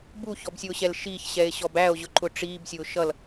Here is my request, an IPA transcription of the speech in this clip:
b u ç ɔ b sʲ ʊː ɕ ɛ l ʃ i ç ɕ ɛ e̯ ɕ ɔ b æ o̯ ʑ ʊ ǃ ʊ ʈ͡ʂ iː b sʲ ʊː ʃ ʌ l

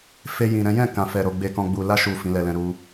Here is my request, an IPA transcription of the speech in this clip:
f e˧ j ĩ˨ ɾ ɛ̃˨˦ j ɛ̃˦˨ k ã˨ f ɛ˨ ɾ o˨ ɡ͡b e˧ k ɔ̃˧ ɡ͡b u˨ l a˧ ʃ u˨ f ĩ˨˦ l ɛ˧ l ɛ̃˧ ɾ u˧

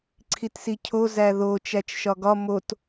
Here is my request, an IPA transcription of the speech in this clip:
ǀʰ i t s i cʰ o z æ ð o t͡ʃ æ t͡ʃ ʃ ɒ ɡ ɒ m o t

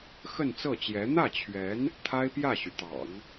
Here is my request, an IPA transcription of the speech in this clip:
x ə˥˧ n t͡s ɤ˥˩ t͡ɕ j ɛ˧˥ n̪ ä˥˩ t͡ɕʰ ɥ ɛ˧˥ n | t̪ʰ a˥ ɪ̯ p j ä˥˩ ɕ y˩ t̪ ɑ̰˨˩˦ ŋ

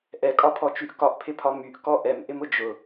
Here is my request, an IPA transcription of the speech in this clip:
ʔ ɛ kʼ ɒ pʰ ɔ t͡ʃ y ʔ k ɒ ʔ pʰ ɪ pʰ ɒ m y ʔ k ɔ ʔ ɛ m ʔ ɪ m ʊ d͡ʒ ʊ

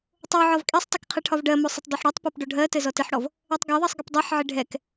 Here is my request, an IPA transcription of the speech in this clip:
tˤ o ʕ ɒ v kʼ ɛ sˤ tˤ ɘ k qʰ ɘ ʈʰ ɒ v ɖ ɜ m o sˤ ɪ tˤ dˤ o ħ ɽ ɔ tˤ p ɛ p ɖ o ɖʱ ɜ t ɘ z ɔ t ɪ ħ ɽ ɔ v | ɛ tˤ ɡ ɒ ðˤ ɜ sˤ ɡ ɪ p dˤ ɜ ħ ʕ ɪ ɖʱ ɛ k

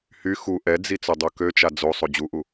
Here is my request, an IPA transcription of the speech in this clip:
h y x u ʔ ɛ d͡z i t͡s œ dˤ o k ø t͡ʃ a d͡z o sˤ o d͡ʑ u ʔ u

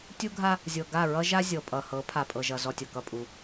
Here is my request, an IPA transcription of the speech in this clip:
tʲ u˦ ɡʱ a˦ | zʲ ɤ˨ ɡ a˦˨ ɹ ʌ˦ ʒ a˦ zʲ ɤ˨ pʼ ʌ˨ h ɤ˨˦ pʰ a˨ pʼ ɤ˨ ʒ ʌ˨ z ɔ˦ tʲ ʌ˨ k ʌ˦ pʼ u˨˦

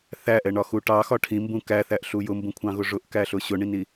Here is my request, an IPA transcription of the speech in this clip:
θ æ ʔ ɛ ɳ ɒ x u ʈ ɑ x ɒ ʈʰ ĩ m b ũ k æ θ æ ʔ ɬ u j ʊ m b ũ kʷʰ ɑ̃ ɣ ʊ ʐ ʊ ʔ k æ ɬ ʊ ɕ ʊ ɳ ĩ n i

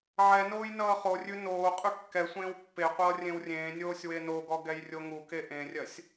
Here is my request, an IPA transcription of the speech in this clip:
ʕ ɛ n oː j n ʌː χ o rʲ ʉ n oː qʼ ʉ kː ɛ sʷ ẽː w pː e qʷ ʌː rʲ ẽ w rʲ ẽː nʲ oː sʲ w e n o ɡ ɔ ɡ ɛ j rʲ o ŋ u k e ʔ ẽ rʲ ɜ sʲ

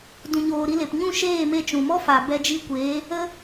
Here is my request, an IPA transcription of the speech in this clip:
d ũ˨ ɲ oː˨ ɾ i˧ l e˨ p ɲ ũ˦˨ ʃ eː˦˨ m e˧ t͡ʃ ũ˨ m ɔ˦ f a˨ b ɛ˧ d͡ʒ i˧ kʷ eː˨˦ | ə˦

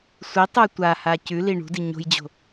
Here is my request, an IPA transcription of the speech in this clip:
sʷ i tˤ ɨ tʷ a h a c ʉ l i ɳ ṳ d i ɲ o̤ j d͡ʑ o̤

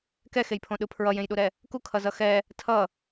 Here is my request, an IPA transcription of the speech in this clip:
k ɛ x e j pʰ õ ɗ ɯ pʰ ɹ ʌ j ẽ j ɗ u ɾ ɛ | k u kʰ ʌ z ʌ x ɛ | tʰ ʌ

